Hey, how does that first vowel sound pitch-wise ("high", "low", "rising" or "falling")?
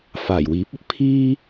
low